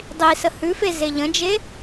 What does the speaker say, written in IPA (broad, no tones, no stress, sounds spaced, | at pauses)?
dˤ i s ə h ʉ f e z e ʎ ə̃ d͡ʒ e